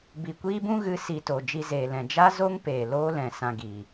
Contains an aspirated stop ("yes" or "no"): no